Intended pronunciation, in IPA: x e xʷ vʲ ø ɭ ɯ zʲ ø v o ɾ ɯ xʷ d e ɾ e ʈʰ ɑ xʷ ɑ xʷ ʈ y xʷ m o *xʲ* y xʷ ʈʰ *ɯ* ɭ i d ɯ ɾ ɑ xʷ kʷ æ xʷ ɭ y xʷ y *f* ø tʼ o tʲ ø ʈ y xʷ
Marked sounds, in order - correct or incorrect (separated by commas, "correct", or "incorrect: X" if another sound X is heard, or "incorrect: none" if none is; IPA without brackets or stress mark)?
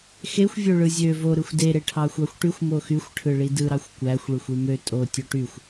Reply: incorrect: x, correct, incorrect: m